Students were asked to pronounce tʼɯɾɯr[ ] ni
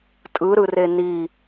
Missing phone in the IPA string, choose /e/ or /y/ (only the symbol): e